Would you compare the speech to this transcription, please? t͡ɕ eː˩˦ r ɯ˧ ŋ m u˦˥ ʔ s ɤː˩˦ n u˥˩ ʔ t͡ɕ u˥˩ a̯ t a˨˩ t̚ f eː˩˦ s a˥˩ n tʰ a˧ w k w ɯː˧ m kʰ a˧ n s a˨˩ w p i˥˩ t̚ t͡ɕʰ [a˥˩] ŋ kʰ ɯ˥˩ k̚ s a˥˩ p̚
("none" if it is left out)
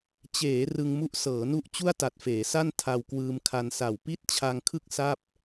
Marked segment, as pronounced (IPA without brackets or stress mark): a˧